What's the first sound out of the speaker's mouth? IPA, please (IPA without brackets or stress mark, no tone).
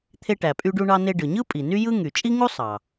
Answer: t̪ʰ